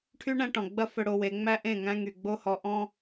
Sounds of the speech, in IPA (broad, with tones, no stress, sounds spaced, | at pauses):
ʈʰ y˦ ɳ æ̃˦ ʈ ɔ̃˨ ɡ͡b ɐ˦ f ɵ˦ ɽ o˦ w e˨˦ ŋ͡m æ˦ ʔ ẽ˦˨ ŋ æ̃˦ ŋ y˨ ɡ͡b o˦ h ɔ˨ ʔ ɔ̃˦